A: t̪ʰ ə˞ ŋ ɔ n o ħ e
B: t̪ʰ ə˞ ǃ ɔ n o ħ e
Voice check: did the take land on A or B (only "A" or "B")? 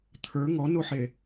A